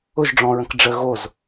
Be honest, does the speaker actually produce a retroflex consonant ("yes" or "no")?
yes